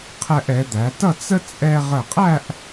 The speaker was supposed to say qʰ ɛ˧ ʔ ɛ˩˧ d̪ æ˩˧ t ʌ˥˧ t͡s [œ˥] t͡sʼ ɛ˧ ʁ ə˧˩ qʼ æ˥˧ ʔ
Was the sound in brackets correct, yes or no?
no